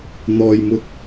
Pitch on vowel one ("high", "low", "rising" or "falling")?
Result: low